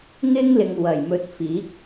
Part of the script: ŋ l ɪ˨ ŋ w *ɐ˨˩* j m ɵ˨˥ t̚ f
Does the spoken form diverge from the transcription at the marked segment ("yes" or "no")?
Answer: no